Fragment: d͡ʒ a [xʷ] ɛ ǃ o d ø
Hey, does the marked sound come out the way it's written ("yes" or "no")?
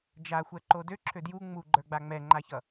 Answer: yes